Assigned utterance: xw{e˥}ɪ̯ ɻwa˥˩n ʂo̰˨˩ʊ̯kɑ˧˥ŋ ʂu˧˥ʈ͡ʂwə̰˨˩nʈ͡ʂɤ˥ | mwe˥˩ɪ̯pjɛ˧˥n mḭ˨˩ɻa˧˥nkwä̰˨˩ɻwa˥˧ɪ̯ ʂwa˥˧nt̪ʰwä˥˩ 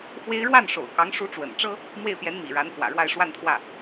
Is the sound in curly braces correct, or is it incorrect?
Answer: correct